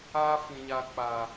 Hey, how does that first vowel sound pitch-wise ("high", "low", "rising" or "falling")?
high